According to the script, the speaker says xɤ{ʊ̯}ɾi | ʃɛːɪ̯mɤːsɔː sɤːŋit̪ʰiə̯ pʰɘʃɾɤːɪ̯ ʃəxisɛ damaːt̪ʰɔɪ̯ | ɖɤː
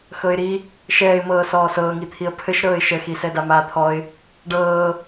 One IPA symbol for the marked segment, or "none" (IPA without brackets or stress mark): ɪ̯